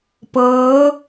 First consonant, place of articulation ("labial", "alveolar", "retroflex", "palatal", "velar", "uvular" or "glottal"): labial